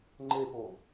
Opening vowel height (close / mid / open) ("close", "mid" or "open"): mid